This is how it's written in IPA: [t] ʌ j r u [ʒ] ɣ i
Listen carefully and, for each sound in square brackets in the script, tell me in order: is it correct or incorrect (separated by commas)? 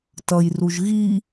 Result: correct, correct